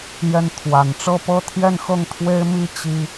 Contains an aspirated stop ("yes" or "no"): yes